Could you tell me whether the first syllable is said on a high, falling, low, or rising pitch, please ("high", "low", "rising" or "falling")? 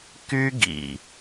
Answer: high